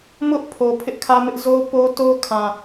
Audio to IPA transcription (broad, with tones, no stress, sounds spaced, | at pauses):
m ʊ˦ ʔ pʰ o˨ pʰ ɪ˦ ʔ kʰ ä˦ m ɪ˦ ʔ z o˦ p o˦ t o˦ kʰ ã˨